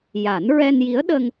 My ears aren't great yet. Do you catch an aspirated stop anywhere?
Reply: no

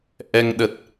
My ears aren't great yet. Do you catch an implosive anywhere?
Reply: yes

